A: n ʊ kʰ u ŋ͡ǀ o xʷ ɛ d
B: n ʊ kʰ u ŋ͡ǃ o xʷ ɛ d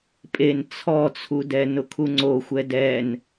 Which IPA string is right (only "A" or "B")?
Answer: A